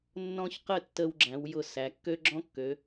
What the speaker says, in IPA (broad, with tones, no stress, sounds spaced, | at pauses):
nː ɔ̃˥ ç q ə˥˧ tː ə˧ w ɡ͡ǁ æ̃˩˧ w j ʊ˧˩ s æ˩˧ kː ø˥ ɡ͡ǁ ɔ̃˥ kː ø˩˧